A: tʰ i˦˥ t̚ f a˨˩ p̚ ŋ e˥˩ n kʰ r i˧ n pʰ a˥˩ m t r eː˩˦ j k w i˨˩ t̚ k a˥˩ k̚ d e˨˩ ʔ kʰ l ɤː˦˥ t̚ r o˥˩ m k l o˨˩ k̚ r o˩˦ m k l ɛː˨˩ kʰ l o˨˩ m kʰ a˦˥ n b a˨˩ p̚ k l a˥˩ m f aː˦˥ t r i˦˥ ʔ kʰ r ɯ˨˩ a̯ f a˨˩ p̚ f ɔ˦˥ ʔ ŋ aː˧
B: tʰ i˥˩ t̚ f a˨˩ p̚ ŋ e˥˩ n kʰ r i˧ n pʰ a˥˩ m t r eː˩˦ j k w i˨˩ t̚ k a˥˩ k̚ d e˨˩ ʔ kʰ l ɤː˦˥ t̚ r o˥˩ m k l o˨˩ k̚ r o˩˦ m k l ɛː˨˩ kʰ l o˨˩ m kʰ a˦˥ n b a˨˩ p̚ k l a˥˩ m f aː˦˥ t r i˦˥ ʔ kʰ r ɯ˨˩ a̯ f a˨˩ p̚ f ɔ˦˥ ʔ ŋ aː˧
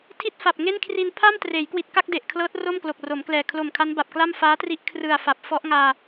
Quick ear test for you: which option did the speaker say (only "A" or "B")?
B